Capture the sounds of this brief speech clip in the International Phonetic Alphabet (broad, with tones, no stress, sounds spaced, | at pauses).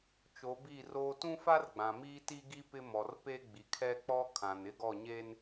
t͡ʃ o˨˦ b i˦˨ r oː˦ t ũ˦ f a˦ r ɡ͡b ã˨ m iː˦ t i˦ ɡ i˦ p ɪ˦ m ɔ˨ r p e˦ ɡ͡b i˨ kʰ ɛ˦ k͡p ɔ˦ kʰ ã˨ n ɪ˦ ɡ ɔ˦˨ ɲ eː˦ n